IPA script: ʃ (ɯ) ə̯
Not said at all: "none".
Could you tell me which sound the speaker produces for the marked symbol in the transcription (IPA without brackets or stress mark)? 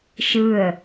ɯ